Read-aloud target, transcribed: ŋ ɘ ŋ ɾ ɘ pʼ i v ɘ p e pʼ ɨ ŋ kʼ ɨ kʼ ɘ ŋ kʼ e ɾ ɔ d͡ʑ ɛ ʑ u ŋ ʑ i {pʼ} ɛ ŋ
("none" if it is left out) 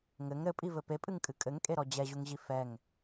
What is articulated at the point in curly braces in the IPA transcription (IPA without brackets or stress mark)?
f